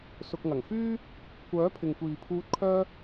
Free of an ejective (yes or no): yes